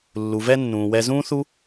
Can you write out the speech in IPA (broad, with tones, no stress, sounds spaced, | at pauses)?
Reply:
lː u˩ v ɛ˧ nː ũː˩ w ɛ˧ z ũː˥ θ u˥